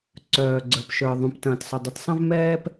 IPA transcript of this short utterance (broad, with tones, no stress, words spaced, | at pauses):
ǀœː˩ ɡ͡ǀə˞˩pʃə˞˩ ðˤũ˩p tɐ̃ː˩tsˤɐ˩dˤɨ˩t sˤɐ̃˥vmɛː˥p